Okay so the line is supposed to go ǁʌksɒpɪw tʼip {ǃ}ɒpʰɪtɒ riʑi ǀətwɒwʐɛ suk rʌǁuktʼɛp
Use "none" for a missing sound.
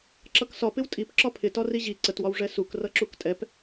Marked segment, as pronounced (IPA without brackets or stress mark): ǁ